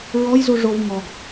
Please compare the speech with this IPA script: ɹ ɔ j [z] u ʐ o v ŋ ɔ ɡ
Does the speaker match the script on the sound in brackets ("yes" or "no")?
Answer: yes